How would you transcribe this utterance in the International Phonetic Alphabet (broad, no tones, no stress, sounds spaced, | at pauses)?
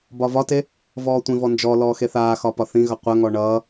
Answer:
b ɒ v ɒ t e | v ɔː tʷ ĩ v ɔ n d͡ʒ ɔ l ɔː x e θ aː x ɒ p ɒ θ ĩ ɣ ʌ qʷ ə ŋ ɔ ɳ ʌː